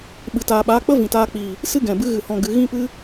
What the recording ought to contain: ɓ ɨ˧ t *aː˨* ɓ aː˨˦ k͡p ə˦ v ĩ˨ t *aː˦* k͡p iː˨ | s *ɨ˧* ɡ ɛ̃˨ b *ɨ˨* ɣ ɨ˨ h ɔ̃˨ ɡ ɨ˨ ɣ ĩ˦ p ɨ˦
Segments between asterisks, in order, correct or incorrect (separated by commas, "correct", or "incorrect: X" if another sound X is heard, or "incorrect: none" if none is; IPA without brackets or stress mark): incorrect: aː˧, incorrect: aː˧, incorrect: ɨ˦, incorrect: ɨ˧